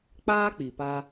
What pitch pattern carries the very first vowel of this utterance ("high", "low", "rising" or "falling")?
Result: high